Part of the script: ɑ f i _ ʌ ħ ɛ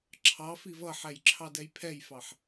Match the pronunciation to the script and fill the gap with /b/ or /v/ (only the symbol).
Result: v